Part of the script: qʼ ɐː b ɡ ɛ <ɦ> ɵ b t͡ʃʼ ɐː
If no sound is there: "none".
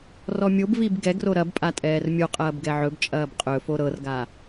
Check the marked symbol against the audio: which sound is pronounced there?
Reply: ʕ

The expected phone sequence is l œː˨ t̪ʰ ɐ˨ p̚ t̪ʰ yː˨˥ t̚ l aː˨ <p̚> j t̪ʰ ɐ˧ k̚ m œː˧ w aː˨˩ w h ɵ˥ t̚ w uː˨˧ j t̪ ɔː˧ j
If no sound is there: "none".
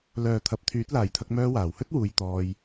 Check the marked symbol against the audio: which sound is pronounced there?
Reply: none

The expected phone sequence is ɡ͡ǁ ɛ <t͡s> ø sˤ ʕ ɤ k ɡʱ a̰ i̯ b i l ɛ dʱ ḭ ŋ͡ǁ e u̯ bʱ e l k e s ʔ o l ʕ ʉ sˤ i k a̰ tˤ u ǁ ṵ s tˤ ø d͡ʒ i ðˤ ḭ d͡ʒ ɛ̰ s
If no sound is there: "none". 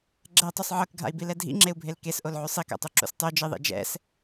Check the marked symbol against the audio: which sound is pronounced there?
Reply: tˤ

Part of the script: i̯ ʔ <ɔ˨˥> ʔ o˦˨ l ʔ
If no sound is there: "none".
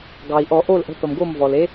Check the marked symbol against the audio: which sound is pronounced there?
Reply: ɔ˧˩˧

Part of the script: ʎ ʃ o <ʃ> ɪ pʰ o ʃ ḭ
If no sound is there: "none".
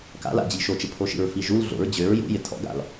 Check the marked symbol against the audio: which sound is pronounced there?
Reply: t͡ʃ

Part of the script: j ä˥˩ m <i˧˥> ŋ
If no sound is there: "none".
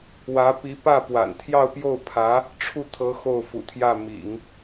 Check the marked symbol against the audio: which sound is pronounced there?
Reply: ḭ˨˩˦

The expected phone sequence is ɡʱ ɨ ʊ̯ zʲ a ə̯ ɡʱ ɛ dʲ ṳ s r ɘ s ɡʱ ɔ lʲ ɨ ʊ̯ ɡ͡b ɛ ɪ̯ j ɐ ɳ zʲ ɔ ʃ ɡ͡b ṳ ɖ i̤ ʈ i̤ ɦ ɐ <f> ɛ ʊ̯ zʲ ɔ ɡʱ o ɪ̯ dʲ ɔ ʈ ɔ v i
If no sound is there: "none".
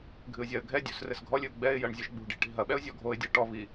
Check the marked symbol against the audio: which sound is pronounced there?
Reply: ɓ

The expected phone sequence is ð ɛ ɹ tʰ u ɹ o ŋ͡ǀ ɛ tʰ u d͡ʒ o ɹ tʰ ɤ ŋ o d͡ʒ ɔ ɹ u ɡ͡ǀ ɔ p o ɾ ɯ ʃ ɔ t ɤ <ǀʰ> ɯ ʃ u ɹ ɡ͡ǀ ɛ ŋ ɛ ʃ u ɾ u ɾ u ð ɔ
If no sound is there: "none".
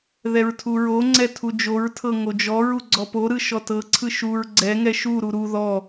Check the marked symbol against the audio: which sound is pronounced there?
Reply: ǀʰ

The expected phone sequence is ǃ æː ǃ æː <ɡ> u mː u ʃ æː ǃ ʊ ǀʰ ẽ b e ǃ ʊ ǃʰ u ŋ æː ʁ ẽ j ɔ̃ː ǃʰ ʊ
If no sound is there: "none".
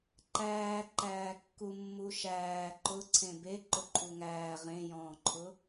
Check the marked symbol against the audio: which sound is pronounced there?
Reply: kː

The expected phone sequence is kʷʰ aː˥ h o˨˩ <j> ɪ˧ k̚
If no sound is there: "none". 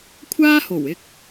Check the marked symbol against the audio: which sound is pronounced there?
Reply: w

